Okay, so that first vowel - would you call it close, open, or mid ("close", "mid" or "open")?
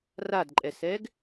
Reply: open